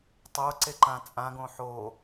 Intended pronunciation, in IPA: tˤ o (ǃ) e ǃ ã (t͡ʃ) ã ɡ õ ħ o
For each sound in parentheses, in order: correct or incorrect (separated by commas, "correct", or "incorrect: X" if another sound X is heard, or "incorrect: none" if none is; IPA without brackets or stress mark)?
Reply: incorrect: ǀ, incorrect: t͡sʼ